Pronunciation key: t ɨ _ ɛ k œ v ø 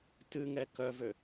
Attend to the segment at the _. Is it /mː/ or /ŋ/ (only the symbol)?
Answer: ŋ